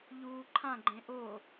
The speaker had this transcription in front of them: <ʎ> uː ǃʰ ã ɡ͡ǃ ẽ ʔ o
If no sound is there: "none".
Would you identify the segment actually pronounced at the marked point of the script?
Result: ʎ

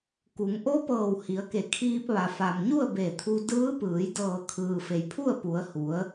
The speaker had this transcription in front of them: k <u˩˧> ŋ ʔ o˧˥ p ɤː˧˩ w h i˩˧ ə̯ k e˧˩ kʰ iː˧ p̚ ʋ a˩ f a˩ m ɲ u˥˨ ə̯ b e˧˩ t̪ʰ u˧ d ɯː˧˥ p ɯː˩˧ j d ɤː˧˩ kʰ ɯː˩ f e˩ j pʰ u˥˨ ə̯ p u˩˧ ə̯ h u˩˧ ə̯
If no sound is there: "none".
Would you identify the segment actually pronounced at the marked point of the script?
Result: u˩˧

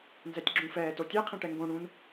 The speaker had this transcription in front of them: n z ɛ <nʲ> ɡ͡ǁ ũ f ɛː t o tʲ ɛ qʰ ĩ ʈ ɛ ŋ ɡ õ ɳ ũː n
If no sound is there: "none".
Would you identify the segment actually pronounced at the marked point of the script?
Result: tʲ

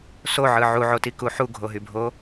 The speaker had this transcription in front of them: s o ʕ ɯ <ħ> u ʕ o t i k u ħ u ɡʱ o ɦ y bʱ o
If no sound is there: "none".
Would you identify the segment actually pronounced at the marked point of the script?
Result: ʕ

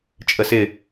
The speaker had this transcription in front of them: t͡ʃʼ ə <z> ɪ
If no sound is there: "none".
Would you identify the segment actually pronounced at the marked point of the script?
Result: s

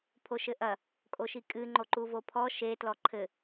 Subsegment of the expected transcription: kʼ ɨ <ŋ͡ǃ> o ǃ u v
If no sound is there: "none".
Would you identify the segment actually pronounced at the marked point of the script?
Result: ŋ͡ǃ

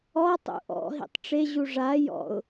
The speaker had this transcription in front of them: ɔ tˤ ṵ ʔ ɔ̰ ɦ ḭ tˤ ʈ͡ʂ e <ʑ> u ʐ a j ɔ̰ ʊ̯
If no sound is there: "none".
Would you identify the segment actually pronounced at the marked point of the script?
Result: ʑ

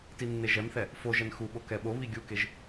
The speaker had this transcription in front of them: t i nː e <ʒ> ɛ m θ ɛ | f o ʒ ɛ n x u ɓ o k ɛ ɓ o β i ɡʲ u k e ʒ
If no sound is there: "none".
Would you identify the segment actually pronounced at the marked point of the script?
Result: ʒ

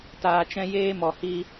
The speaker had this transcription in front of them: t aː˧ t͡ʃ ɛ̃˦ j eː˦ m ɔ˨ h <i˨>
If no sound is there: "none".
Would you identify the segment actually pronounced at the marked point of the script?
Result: i˧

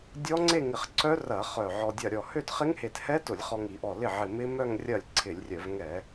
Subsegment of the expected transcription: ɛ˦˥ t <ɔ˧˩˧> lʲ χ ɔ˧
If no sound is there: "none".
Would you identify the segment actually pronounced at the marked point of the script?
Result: ʊ˧˩˧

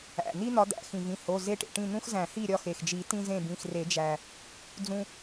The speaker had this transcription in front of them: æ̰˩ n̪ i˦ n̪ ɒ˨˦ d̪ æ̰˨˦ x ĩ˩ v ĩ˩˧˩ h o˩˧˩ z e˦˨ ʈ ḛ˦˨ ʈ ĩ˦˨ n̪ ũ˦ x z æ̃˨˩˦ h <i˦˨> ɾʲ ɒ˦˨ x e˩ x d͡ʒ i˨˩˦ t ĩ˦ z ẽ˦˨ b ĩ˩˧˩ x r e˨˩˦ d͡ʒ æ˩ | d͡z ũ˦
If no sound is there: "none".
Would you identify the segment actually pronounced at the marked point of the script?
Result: i˦˨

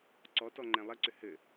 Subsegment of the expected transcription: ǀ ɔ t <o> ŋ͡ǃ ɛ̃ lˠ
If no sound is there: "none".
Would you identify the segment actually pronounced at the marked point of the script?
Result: ɔ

